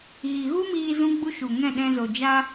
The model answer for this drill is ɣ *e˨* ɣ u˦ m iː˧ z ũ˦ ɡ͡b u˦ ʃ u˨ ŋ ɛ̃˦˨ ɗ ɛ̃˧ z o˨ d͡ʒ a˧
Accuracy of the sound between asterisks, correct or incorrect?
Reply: incorrect